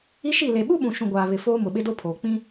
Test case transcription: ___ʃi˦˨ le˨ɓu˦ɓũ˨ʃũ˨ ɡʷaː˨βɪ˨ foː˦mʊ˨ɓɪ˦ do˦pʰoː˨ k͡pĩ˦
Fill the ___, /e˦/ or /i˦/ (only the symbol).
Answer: i˦